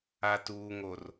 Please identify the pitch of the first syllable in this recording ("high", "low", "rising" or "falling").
low